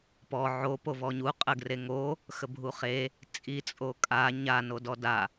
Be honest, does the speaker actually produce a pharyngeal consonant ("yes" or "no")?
yes